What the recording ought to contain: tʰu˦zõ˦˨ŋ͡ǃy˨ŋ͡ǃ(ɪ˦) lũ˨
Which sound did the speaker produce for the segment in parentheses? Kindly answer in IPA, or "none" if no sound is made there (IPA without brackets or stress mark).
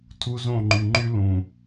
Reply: y˦